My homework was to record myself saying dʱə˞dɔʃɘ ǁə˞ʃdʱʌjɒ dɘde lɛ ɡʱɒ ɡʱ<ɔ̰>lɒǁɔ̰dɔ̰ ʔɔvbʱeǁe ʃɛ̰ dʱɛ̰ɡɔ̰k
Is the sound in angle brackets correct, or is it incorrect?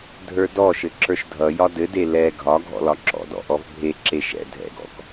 correct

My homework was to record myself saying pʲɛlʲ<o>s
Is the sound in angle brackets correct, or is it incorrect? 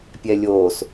correct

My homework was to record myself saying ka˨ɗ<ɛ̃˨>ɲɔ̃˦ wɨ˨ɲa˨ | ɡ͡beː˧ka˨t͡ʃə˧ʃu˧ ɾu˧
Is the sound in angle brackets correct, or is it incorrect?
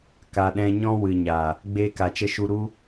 incorrect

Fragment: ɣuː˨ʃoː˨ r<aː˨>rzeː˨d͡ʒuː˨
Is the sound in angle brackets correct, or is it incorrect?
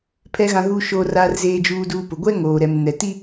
correct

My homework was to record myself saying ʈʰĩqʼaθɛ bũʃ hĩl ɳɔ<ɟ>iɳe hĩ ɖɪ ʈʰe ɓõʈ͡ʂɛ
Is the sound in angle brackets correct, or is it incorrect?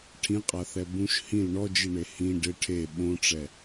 incorrect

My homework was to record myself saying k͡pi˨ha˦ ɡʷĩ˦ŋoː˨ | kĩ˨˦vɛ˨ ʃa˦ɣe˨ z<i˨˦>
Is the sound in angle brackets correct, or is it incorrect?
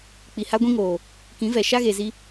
incorrect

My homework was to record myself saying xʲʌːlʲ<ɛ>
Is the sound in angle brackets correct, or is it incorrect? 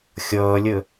incorrect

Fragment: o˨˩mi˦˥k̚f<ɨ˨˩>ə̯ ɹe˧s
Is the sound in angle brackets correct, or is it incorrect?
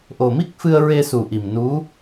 incorrect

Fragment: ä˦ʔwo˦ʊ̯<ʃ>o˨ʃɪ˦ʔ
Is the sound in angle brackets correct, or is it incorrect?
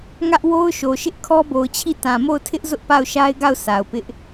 correct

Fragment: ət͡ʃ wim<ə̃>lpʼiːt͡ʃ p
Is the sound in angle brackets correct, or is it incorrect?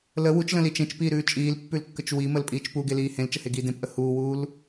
incorrect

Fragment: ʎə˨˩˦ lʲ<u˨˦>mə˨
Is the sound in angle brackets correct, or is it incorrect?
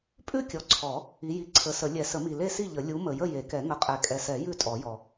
correct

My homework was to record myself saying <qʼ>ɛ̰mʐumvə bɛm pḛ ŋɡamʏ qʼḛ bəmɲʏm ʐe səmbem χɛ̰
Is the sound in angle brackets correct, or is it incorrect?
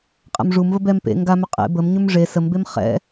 correct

